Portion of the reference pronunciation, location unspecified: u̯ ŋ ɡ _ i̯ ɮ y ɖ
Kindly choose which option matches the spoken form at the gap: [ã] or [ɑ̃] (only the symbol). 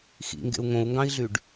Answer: ɑ̃